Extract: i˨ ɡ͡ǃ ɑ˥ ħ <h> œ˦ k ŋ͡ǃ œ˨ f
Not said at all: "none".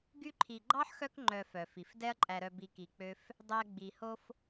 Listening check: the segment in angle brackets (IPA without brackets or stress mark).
x